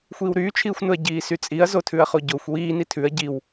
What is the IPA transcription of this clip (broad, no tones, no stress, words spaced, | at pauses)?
xʷiːwɾyːt͡ʃʰiːxʷnʊɐ̯ ɟiːsyt͡sʼiɐ̯ zotʰʉɐ̯χoɟoxʷ wiː nitʰʉɐ̯ ɟiw